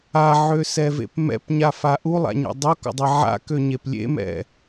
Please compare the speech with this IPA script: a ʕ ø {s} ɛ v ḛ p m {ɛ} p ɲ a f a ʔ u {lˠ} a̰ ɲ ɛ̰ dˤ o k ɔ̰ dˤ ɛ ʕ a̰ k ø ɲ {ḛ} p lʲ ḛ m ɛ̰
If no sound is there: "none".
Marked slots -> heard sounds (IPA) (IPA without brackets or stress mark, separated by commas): s, ɛ̰, lˠ, e